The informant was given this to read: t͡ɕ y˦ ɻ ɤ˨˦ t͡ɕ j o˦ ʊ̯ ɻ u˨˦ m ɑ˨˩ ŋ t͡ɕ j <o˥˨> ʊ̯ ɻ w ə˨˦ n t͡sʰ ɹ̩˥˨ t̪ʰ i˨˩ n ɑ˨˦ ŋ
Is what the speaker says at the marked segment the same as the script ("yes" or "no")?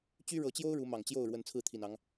yes